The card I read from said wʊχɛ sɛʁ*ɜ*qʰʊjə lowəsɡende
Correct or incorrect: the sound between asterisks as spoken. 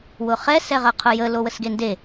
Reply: correct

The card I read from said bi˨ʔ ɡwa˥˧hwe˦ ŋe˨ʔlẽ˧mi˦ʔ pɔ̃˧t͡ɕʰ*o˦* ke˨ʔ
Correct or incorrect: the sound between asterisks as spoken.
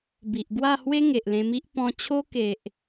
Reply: correct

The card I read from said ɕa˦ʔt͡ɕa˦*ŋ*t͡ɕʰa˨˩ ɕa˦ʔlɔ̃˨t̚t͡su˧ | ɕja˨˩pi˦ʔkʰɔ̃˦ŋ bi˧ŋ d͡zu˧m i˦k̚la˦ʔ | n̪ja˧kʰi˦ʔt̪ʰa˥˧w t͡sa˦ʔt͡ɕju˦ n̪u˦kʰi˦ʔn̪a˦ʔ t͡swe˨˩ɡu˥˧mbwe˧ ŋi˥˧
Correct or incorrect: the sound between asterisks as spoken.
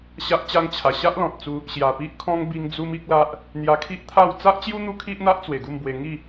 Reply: correct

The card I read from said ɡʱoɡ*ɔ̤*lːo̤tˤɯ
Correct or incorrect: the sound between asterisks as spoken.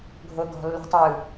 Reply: correct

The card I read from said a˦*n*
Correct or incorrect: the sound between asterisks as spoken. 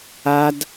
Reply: incorrect: d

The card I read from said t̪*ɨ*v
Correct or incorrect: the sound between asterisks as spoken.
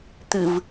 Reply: correct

